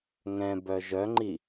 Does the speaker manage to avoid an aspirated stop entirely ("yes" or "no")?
yes